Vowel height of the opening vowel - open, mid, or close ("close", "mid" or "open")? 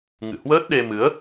close